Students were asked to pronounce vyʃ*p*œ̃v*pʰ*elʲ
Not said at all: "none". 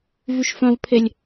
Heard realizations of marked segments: f, pʰ

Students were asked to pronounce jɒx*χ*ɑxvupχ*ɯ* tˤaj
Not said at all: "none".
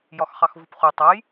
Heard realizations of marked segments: χ, u

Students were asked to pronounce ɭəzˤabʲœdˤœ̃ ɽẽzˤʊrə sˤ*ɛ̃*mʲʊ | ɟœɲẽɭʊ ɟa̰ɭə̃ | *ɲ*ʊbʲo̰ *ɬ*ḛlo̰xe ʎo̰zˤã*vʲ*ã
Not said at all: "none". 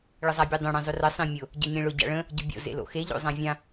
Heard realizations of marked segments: ẽ, ɟ, z, vʲ

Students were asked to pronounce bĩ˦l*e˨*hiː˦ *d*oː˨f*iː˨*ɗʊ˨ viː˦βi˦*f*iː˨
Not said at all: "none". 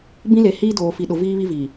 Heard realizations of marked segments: e˨, d, i˨, v

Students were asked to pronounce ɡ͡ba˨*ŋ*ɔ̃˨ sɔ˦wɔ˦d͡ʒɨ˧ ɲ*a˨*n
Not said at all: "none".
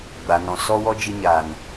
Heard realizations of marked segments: n, a˨

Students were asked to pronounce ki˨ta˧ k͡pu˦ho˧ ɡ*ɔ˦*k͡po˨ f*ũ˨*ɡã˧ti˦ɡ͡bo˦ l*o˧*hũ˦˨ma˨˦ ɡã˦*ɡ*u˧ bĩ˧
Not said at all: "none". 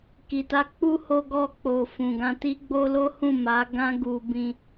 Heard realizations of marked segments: ɔ˧, ũ˨, o˦, ɡ

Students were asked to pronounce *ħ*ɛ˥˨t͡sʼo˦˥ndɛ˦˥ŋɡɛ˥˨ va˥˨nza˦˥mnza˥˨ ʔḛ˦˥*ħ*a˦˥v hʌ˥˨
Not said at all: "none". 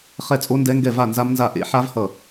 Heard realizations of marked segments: χ, ħ

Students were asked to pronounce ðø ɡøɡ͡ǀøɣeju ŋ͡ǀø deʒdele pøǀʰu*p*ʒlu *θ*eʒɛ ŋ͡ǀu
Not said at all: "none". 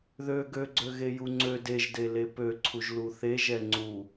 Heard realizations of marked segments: none, θ

